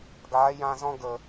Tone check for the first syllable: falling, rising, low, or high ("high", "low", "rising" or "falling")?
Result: rising